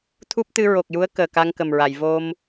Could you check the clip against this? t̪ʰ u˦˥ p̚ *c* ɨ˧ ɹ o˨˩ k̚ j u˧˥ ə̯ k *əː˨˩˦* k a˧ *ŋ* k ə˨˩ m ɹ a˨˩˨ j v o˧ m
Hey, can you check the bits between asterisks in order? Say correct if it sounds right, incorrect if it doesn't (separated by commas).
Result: incorrect, incorrect, correct